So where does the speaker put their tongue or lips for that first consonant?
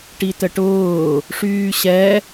retroflex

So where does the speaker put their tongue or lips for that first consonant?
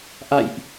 throat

